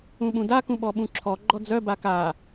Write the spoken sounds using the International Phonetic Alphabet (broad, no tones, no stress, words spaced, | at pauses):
ũɓũda kũɓɔɓũǁʰɔ ɡ͡ǃɔd͡zœ baka